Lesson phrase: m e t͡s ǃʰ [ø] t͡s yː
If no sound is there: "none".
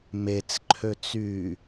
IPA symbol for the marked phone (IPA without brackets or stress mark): ø